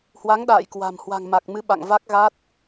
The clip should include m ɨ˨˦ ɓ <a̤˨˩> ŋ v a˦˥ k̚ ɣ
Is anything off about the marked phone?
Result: yes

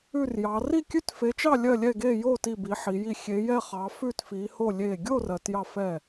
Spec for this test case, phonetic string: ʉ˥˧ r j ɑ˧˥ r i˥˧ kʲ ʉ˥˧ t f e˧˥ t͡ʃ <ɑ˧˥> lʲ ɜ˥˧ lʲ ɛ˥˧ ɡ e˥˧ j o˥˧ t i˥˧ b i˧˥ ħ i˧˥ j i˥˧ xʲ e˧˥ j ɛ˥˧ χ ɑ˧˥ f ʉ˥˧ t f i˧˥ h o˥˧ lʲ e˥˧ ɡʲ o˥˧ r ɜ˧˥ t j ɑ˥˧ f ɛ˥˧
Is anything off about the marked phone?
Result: yes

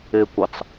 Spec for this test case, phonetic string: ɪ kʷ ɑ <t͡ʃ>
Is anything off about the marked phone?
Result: yes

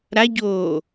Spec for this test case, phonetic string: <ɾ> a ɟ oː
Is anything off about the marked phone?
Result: no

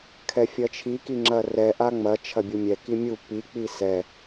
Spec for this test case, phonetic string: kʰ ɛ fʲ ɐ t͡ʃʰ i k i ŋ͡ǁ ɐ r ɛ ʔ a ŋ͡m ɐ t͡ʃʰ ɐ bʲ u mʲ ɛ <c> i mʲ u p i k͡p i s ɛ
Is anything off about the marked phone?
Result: yes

